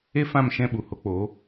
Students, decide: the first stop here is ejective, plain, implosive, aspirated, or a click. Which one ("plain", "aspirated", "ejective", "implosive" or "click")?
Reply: implosive